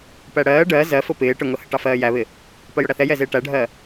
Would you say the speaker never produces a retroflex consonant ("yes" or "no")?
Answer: no